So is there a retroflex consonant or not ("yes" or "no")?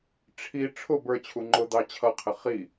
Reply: yes